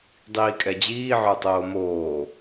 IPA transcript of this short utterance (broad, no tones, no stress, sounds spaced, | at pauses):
dˤ iː kʼ ɛ d͡ʑ iː ʕ ə˞ tˤ oː m oː